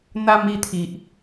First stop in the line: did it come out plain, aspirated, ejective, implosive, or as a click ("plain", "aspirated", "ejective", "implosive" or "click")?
aspirated